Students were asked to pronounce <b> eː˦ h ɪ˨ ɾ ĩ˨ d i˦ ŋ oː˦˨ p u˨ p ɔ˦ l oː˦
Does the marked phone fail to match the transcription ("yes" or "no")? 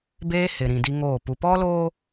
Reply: no